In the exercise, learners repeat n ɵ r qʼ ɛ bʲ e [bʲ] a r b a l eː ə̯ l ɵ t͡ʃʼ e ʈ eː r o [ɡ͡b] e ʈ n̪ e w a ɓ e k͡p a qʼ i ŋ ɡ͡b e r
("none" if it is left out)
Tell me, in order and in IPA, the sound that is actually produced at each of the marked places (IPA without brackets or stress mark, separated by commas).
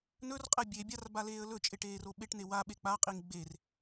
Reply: bʲ, ɓ